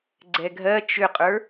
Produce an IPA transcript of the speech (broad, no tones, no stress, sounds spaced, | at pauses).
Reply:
ɡ͡ǀ ɛ ɡʱ ɜ t͡ʃ ʏ qʼ ə˞